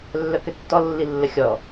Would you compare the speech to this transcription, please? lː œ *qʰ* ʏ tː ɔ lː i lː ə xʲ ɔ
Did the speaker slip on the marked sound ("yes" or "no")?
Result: yes